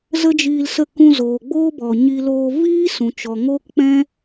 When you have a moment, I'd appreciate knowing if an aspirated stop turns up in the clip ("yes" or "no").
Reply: no